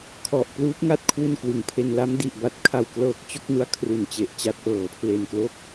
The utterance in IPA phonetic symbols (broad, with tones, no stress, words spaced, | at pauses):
kʰɔ˨˩ʔ pluː˦˥p̚ŋa˥˩t̚ kʰwu˥˩nkwɯ˩˦ŋpʰe˧n la˦˥mdi˨˩ʔ ba˨˩t̚kʰa˨˩wklɤː˨˩k̚ t͡ɕo˥˩k̚nu˦˥a̯ kʰru˨˩nt͡ɕe˨˩ʔt͡ɕa˦˥t̚ʔɤː˩˦ pʰle˨˩nklo˥˩k̚